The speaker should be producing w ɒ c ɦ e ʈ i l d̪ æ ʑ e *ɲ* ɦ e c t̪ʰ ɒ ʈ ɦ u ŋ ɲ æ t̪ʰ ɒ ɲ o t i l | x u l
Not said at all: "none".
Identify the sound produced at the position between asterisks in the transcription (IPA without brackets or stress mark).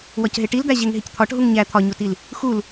ŋ